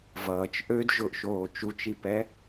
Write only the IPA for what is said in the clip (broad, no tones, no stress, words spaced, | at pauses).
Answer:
vʌːt͡ʃ ʔød ʒʊʔʃoː t͡ʃut͡ʃipɛ